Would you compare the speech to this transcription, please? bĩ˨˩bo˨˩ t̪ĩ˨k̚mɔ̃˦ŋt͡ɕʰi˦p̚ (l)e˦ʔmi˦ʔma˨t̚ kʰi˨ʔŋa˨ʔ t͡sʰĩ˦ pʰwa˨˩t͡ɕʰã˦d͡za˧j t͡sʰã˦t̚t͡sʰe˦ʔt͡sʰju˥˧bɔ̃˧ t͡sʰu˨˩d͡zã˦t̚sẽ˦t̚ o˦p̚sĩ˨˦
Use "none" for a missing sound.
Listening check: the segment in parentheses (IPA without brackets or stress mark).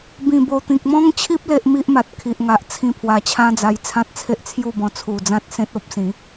l